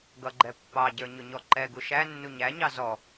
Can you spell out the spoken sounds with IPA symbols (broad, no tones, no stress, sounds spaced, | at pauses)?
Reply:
ɡ ʌ ɡ͡ǃ ɛ pː ɑ ɟ ə˞ ɲ ʊ ɲ ɔ ǃ ɛ ɡ u ʃ æ nː u ɲ æ ɲ ɑ z ɔ